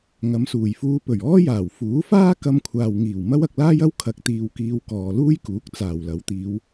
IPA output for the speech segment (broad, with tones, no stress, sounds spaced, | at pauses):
ŋ ɐ˨˧ m s uː˨˩ j f uː˧ p ɵ˨˩ ɥ ɔː˥ j aː˨˩ w f uː˨˥ f aː˥ k ɐ˧ m kʷʰ aː˨ w ŋ iː˨˩ w m ɐ˥ w ɐ˧ k̚ l aː˥ j ɐ˥ w kʰ ɐ˧ k̚ t̪ iː˧ w k iː˧ w k ɔː˨ l uː˥ j k uː˨˥ k̚ t͡s aː˨˩ w l ɐ˨˥ w t̪ iː˨˧ w